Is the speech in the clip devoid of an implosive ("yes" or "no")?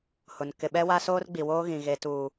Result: no